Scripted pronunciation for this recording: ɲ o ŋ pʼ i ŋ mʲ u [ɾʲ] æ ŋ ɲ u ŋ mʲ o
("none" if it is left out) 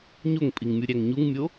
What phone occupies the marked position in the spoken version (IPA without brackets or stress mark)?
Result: ɾʲ